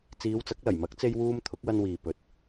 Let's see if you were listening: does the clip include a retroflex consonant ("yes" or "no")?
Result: no